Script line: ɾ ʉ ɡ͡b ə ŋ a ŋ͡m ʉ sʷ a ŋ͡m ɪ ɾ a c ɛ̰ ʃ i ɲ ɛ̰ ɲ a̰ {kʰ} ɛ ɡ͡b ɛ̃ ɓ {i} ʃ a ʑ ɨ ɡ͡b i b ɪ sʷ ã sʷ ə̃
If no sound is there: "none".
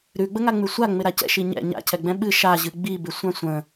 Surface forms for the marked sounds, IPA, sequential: cʰ, ɨ

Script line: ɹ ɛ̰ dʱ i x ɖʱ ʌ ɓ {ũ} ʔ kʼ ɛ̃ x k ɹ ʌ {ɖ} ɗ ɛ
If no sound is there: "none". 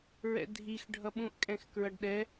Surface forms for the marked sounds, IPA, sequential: ũ, ɖ

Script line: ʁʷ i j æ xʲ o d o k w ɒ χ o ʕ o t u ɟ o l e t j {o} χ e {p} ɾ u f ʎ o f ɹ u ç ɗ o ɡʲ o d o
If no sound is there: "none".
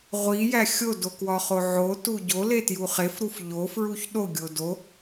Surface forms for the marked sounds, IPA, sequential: u, f

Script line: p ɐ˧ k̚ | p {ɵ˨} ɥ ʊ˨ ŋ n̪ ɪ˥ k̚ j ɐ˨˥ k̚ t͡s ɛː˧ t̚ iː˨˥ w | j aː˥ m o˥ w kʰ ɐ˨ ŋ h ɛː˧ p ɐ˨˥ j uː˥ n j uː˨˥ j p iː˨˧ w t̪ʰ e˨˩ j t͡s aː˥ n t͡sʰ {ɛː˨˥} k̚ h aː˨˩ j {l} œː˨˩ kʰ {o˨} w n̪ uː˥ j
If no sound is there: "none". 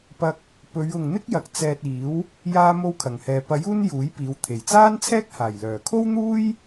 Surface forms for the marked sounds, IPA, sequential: ɵ˨˧, ɛː˥, l, o˥

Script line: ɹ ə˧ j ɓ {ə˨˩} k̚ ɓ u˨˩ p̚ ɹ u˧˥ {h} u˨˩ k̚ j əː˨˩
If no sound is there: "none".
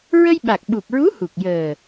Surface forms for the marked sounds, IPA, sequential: a˨˩, h

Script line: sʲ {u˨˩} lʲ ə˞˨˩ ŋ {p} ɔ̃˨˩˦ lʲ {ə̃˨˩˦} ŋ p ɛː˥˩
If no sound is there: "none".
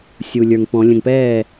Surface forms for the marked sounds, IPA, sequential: u˨˩, p, ə̃˨˩

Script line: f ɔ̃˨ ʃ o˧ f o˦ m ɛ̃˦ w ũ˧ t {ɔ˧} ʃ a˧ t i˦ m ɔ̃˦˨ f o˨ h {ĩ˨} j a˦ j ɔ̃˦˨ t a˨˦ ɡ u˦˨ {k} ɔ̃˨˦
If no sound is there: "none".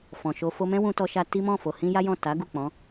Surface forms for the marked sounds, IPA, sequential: ɔ˧, ĩ˧, k͡p

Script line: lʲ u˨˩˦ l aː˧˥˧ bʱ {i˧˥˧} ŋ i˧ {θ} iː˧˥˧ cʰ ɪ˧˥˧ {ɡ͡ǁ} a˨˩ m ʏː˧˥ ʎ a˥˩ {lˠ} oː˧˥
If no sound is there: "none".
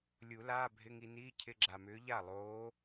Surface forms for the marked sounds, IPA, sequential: ɪ˧˥˧, n, ɡ͡ǁ, lˠ

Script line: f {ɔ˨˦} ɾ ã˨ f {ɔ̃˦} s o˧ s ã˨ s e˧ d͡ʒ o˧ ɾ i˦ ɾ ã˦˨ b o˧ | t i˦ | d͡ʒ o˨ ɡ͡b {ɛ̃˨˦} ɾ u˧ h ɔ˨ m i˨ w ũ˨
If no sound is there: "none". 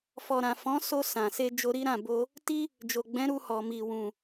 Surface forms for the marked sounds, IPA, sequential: ɔ˨, ɔ̃˨˦, ɛ̃˨˦

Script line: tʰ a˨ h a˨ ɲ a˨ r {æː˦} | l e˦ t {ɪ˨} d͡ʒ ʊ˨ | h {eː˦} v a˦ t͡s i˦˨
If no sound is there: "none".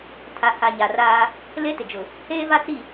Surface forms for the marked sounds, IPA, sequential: aː˦, ɪ˨, eː˦

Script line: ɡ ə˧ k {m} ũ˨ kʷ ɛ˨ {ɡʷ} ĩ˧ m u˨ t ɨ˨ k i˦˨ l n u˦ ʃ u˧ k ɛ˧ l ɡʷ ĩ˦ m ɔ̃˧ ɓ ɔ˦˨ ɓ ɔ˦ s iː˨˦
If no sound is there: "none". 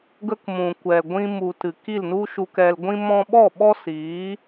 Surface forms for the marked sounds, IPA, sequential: m, ɡʷ

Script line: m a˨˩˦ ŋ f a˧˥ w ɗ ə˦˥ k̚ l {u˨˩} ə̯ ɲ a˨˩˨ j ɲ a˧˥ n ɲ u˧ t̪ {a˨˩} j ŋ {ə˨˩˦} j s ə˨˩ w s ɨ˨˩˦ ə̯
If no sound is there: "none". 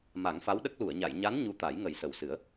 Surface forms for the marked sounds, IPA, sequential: u˨˩˨, a˨˩˦, ə˨˩˦

